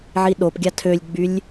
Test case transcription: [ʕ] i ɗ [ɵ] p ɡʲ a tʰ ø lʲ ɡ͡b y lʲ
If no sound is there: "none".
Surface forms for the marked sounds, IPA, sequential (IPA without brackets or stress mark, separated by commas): ʕ, o